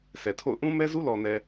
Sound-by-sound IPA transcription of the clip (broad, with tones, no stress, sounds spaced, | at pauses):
sʰ ɛ˨ tʰ o̰˦˨ ʊ̯ ʔ ũ˦ m ɛ˦ z u˦ l ɔ˨ n ɛ˨